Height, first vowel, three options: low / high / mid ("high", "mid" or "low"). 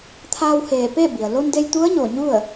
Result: low